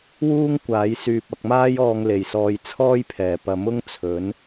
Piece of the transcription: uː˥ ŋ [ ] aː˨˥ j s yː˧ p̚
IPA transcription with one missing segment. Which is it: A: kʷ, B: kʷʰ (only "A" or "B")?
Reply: A